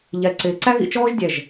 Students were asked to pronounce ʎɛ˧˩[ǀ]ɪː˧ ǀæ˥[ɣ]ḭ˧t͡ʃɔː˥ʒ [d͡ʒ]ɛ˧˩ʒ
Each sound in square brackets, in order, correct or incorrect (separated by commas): correct, correct, incorrect